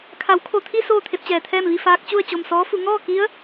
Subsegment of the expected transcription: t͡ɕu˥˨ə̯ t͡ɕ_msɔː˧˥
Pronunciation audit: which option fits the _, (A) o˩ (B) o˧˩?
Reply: B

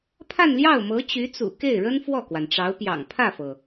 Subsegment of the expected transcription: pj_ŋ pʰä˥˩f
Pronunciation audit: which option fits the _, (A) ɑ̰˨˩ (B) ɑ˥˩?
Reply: A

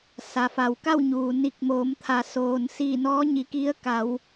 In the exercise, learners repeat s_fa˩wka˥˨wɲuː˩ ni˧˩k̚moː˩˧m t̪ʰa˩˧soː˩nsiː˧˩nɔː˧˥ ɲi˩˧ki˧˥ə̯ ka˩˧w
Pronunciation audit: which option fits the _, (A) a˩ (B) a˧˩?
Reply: A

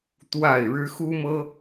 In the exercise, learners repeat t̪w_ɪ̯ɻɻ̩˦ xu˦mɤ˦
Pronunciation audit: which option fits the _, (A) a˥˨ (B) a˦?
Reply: A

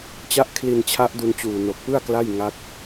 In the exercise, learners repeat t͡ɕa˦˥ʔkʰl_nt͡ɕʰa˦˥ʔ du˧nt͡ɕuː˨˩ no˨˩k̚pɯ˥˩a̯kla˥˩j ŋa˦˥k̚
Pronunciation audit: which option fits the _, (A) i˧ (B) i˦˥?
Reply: A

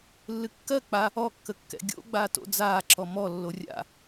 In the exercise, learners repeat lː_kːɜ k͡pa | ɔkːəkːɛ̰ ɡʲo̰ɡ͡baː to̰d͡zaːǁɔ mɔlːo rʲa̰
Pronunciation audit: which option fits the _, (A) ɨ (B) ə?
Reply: A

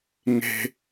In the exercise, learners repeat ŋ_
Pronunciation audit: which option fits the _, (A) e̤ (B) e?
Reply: A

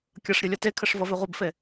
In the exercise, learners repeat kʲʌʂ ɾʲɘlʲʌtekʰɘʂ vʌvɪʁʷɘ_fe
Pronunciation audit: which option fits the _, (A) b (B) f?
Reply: A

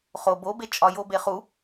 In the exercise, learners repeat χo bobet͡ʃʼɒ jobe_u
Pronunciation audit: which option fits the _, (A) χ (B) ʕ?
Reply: A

